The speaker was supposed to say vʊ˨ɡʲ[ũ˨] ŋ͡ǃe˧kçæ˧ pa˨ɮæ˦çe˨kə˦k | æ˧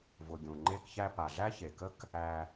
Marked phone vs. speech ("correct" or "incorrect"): correct